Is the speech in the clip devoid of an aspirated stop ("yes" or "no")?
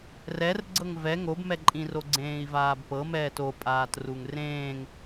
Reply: yes